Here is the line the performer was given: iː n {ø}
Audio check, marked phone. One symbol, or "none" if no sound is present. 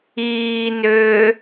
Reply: ø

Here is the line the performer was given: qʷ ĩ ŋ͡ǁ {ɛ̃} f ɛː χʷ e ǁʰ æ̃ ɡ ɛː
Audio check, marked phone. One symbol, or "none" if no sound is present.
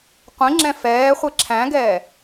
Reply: ɛ̃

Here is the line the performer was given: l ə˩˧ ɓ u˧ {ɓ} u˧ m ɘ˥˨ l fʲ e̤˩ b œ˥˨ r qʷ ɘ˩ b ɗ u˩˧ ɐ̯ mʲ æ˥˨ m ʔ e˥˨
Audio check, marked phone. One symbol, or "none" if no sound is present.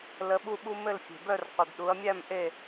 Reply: ɓ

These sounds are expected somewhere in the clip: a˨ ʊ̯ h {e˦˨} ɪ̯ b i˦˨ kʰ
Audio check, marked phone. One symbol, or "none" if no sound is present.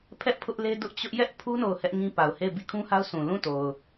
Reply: e˦˨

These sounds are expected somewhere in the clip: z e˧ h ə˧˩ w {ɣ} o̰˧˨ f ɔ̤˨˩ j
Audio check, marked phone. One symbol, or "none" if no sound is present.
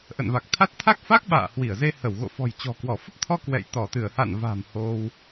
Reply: ɣ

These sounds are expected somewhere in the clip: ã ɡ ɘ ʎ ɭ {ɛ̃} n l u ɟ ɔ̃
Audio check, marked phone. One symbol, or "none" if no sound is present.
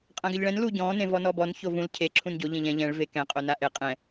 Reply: ɛ̃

